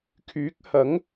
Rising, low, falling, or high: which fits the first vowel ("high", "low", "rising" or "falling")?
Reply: rising